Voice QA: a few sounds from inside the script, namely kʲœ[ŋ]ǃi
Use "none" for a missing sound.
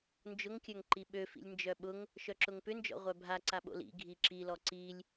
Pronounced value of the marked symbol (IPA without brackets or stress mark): ŋ